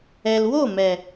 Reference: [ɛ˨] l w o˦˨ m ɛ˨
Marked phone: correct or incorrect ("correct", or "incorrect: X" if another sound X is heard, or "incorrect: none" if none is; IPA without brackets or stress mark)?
correct